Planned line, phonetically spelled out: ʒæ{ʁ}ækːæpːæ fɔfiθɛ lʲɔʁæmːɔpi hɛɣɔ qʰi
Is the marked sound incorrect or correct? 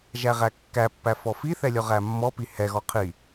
correct